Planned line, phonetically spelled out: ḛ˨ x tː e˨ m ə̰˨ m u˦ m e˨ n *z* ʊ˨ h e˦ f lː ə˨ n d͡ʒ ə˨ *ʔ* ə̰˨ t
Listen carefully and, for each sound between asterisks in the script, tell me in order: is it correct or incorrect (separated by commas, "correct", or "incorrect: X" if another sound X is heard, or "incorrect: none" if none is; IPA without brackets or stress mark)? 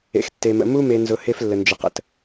correct, incorrect: q